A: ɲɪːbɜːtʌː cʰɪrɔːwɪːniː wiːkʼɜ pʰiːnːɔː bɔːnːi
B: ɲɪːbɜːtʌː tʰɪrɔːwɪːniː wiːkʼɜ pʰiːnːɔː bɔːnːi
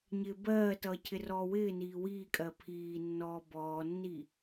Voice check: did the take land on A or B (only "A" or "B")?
A